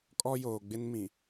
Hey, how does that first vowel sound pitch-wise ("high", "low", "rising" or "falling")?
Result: high